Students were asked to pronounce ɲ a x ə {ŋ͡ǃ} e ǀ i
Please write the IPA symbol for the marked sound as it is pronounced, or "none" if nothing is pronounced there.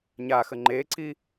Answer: ŋ͡ǃ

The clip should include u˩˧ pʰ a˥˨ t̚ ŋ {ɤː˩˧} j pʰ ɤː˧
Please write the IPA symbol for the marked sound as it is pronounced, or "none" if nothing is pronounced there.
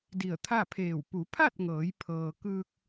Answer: ɤː˩˧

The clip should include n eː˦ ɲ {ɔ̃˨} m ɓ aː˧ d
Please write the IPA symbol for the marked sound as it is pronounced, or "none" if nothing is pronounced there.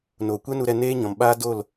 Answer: ɔ̃˨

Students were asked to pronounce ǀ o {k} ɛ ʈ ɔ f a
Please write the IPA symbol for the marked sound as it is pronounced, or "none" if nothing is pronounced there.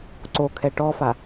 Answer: kʰ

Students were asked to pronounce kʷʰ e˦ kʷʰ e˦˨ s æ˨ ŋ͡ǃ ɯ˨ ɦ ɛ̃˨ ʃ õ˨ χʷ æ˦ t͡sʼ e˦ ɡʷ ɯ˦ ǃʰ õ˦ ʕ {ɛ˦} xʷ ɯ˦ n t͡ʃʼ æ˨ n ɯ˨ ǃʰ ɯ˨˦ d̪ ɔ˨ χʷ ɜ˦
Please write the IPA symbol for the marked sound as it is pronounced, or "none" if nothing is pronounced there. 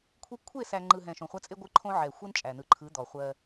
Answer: ɛ˨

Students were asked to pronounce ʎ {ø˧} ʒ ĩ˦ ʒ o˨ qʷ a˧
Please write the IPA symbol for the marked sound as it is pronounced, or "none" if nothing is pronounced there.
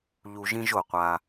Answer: u˧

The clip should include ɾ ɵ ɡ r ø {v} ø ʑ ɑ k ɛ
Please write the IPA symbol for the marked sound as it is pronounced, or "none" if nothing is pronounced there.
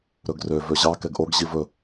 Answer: v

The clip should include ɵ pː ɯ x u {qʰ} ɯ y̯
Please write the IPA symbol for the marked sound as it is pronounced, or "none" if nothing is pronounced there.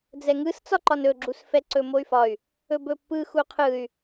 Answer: qʰ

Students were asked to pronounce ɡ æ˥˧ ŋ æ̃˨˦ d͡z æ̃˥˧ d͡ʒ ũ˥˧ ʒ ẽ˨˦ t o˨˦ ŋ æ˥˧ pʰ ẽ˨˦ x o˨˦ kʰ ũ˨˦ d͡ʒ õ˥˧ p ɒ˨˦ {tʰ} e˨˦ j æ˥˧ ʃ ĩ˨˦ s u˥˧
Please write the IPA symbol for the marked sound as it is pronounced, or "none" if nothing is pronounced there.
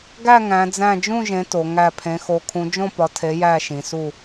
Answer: tʰ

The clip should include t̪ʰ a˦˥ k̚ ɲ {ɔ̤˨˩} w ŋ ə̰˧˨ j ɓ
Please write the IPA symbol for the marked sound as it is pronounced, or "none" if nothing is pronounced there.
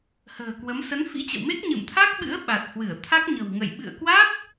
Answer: ə̤˨˩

